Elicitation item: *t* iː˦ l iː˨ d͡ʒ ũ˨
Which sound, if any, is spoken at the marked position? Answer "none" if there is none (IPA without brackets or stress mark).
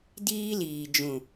d